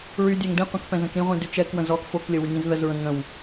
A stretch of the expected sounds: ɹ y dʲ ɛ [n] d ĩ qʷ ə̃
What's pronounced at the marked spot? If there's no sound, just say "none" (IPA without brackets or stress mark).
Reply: ŋ